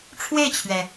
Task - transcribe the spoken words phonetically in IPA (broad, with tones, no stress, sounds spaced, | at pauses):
ʈ͡ʂʰ w e˥˩ ɪ̯ t͡ɕʰ ɥ ɛ˩